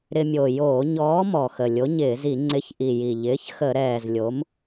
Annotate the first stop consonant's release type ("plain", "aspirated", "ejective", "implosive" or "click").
click